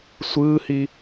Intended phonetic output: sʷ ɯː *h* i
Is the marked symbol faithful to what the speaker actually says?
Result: yes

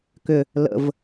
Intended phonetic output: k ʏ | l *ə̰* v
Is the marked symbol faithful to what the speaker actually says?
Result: yes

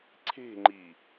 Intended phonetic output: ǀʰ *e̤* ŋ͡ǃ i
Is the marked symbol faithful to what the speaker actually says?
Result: yes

